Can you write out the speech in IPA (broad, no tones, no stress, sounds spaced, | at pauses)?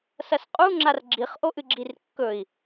s ɐ s qʼ u ŋ͡ǁ a r ɡ͡ǁ i χ ʔ o ʔ ɨ ɡ͡ǁ i r kː ɵ i̯